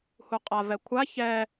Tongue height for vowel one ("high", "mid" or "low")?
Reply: high